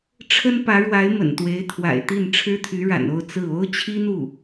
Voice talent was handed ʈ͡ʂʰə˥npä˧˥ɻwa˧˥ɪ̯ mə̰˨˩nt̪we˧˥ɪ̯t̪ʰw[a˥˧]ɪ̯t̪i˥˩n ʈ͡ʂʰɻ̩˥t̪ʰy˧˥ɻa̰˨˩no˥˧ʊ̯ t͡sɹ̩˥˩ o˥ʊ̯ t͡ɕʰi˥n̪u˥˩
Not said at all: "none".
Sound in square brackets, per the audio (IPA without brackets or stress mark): a̰˨˩